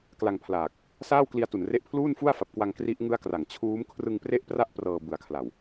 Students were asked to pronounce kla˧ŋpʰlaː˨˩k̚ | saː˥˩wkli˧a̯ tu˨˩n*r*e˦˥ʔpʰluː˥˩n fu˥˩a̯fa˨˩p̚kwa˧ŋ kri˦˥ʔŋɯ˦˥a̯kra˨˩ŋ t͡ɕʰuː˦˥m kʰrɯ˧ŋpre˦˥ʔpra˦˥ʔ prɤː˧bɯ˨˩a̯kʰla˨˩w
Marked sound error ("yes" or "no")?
no